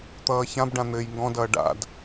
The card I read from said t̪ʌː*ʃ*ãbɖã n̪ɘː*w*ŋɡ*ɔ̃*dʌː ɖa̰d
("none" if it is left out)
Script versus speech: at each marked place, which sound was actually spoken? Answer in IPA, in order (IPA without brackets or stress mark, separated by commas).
ç, j, ɔ̃